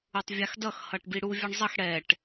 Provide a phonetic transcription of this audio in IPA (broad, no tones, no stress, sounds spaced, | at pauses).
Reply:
u tˤ vʲ a x d ʌ x h ʌ ʈ b i ɽ u vʲ ʌ ɳ zˤ ʌ x ɽ ɛ ʈ